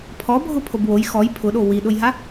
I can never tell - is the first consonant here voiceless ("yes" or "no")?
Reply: yes